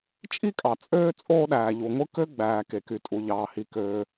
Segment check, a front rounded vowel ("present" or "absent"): present